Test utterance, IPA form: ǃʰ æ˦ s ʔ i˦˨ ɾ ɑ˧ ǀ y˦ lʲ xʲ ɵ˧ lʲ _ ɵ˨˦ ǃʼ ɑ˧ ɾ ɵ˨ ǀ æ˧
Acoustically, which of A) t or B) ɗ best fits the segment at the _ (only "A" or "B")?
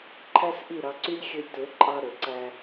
A